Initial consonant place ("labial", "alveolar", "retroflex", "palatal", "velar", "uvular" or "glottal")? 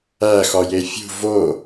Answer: velar